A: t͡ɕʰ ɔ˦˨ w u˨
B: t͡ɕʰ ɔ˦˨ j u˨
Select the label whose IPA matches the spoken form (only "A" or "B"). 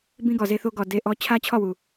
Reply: A